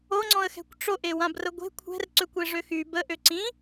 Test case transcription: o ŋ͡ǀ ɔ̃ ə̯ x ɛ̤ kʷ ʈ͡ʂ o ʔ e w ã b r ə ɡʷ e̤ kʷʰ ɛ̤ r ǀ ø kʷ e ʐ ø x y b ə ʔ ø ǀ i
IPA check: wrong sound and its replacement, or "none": i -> ĩ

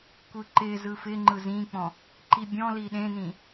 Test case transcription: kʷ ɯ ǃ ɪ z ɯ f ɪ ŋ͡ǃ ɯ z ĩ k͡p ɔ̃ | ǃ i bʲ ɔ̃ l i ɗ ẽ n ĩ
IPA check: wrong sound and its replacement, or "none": none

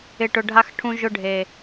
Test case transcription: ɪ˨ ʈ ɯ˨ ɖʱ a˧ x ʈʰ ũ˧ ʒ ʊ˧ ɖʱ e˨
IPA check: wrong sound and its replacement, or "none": ɯ˨ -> ʊ˨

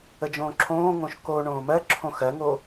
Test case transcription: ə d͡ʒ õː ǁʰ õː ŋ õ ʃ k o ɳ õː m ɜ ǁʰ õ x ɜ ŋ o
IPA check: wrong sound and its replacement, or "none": none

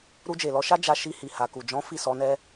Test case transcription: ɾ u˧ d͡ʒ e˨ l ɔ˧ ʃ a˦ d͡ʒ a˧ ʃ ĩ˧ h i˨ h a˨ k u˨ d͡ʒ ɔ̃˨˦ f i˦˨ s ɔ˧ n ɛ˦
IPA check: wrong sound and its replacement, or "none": ĩ˧ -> i˧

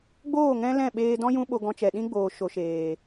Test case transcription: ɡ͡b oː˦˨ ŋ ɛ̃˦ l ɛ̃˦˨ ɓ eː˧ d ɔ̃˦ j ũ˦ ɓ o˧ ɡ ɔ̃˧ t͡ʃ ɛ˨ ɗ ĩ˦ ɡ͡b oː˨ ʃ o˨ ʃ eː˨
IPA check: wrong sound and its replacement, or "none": none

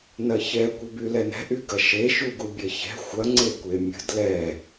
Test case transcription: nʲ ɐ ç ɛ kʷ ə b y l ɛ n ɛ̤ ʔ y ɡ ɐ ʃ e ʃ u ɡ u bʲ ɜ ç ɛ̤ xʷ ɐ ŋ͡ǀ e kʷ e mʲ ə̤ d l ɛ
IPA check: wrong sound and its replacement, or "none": nʲ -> n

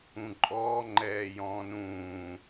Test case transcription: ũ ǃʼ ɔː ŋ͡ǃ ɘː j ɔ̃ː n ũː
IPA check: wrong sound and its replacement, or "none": ɘː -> ɛː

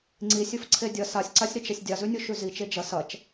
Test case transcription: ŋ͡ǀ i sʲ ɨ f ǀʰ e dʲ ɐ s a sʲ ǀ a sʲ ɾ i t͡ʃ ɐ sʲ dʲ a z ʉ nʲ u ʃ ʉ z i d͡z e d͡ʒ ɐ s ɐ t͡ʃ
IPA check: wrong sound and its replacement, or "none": d͡z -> t͡ʃ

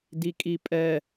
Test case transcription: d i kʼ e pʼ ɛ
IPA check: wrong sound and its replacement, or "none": e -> i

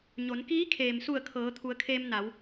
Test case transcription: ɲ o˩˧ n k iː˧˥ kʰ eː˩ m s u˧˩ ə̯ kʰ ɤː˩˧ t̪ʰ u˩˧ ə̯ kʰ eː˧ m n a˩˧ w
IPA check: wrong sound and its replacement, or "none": none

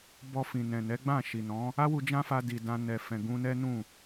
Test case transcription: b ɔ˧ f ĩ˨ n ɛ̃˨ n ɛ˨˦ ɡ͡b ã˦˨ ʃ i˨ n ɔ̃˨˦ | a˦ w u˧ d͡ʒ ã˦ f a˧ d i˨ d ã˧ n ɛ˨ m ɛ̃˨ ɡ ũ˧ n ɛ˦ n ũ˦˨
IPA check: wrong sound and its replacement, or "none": m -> f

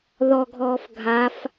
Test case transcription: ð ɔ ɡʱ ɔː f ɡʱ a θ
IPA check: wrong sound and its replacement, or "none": θ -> f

